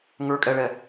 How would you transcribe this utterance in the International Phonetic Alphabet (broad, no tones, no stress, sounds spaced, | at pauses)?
ŋ ə˞ kʼ ɛ ɭ ɛ